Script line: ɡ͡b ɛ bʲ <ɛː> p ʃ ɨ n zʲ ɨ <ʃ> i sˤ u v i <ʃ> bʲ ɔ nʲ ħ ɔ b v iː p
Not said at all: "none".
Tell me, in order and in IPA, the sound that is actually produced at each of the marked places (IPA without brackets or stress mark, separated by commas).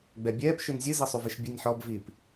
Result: ɛː, z, ʃ